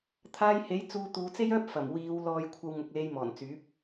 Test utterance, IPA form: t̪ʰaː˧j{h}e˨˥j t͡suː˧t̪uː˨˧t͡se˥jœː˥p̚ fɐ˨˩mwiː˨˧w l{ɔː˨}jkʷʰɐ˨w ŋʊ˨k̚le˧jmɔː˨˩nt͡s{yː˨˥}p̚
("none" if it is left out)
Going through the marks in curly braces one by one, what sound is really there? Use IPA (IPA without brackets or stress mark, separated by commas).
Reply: h, ɔː˨, yː˨˥